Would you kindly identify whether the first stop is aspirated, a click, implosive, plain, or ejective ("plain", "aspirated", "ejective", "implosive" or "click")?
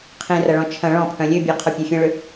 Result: aspirated